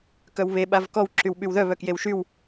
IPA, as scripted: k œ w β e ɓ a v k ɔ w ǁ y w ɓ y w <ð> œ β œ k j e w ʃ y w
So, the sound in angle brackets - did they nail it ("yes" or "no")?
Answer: yes